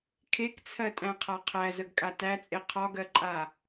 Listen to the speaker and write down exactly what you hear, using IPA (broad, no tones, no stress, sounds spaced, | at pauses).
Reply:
kʰ e k t͡sʰ ɜ tʼ æ̃ qʰ a qʰ æ z ə ɡ kʼ a t æ t͡sʼ e qʰ ɒ ɡ ɜ ǃʼ a